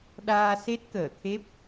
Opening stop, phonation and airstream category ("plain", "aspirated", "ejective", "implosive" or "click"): implosive